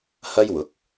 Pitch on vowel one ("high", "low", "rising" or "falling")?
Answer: high